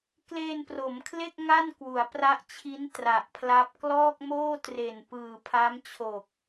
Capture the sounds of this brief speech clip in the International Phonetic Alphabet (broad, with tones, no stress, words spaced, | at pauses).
kleː˧npro˩˦mkʰle˥˩k̚ ŋa˥˩n kwu˩˦a̯pra˦˥ʔt͡ɕʰi˦˥n tra˨˩ʔpʰla˦˥p̚ klɔː˥˩k̚moː˥˩ tre˨˩n pɯː˨˩ pʰa˦˥mt͡ɕʰo˨˩k̚